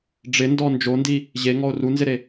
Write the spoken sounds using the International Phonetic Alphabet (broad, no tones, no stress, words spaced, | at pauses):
ɖ͡ʐɪndɔ nd͡ʒondi | ʑeŋɔo̯ runzɪɾe